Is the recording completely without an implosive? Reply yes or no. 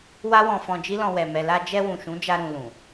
yes